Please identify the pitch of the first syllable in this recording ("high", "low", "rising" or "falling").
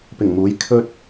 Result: low